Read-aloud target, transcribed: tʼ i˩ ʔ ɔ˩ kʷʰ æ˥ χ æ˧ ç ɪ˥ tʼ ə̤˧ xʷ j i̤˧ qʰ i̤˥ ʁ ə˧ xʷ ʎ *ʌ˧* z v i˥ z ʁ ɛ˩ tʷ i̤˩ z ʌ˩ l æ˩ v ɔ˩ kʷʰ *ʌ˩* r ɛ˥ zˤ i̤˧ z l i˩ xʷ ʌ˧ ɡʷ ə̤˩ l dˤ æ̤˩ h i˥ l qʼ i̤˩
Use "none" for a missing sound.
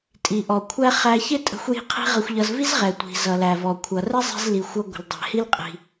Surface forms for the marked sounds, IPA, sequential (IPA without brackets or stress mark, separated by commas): ʌ˧, ʌ˩